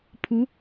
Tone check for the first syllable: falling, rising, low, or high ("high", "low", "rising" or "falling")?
rising